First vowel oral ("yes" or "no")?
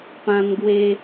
no